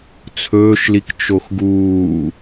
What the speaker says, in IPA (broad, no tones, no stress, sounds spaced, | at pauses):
t͡sʰ ɵː ʃ l i k t͡ʃ o x ɡ uː